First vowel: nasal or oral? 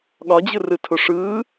oral